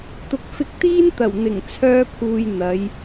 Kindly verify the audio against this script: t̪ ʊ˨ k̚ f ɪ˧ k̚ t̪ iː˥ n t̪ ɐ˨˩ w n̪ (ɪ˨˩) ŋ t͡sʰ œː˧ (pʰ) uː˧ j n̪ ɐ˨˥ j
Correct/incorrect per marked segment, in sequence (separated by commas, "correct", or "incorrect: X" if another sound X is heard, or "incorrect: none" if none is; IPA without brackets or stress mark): correct, correct